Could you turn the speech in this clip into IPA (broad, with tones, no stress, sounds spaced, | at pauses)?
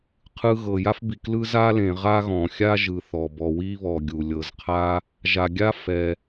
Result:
qʰ ɯ˨ ɣ ɤ˩ j a˦ f b i˩ k l ɯ˦ z a˥ l ẽ˨ ʁ a˥ ɣ ɔ̃˩ xʲ a˥ ʒ ɯ˨ θ ɔ˩ b ɔ˨ w i˥ β ɔ˨ ɡʲ u˩ lʲ ɤ˨ z qʰ a˥ | ʒ a˨ ɡʲ a˥ f ɛ˨